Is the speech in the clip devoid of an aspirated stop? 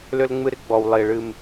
yes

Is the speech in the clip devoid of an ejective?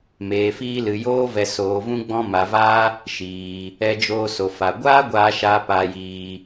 yes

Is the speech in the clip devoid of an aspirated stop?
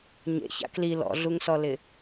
yes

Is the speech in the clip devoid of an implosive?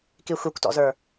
yes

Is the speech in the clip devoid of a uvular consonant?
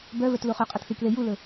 no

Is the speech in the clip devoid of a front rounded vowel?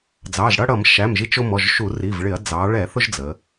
yes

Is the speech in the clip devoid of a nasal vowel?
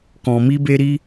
no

